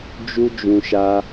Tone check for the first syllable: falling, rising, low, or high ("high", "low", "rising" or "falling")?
high